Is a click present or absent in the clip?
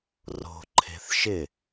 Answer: present